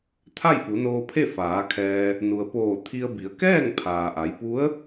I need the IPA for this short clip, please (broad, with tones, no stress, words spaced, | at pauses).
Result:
t̪ʰa˥˨jfu˩˧noː˧pʰe˥˨ faː˩˧kʰɛː˧ | nu˩ə̯poː˧˩ t̪ʰi˧ə̯bi˩˧ə̯ kɛː˥˨ŋpʰaː˩ʔa˩˧jpu˧˥ə̯